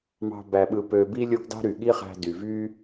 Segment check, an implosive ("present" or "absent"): present